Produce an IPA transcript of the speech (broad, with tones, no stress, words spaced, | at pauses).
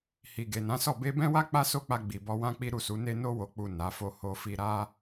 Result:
hi˨ɡe˨nã˨˦sɔ˦˨ be˧bɛ̃˦wa˦ k͡pa˦so˦k͡pa˧ ɡ͡bi˨bɔ˧wã˦k͡pi˦ ɾu˦˨su˨˦ne˦ no˧wo˨k͡pu˨ na˨˦fo˦ho˦fi˦ ɾa˦